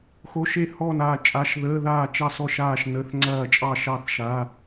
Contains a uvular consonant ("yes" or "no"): no